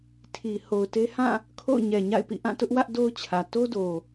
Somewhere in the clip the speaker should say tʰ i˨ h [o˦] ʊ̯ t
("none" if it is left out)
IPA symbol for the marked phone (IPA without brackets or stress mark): o˨